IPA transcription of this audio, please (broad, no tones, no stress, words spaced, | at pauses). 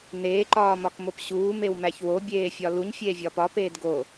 neːǃɒːmɒkmop ɕuːmewmæç wobʲeːfʲɒ luɲfʲeːvʲɒːp ɒpeːd ɡo